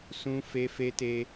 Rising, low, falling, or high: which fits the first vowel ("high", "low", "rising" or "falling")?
high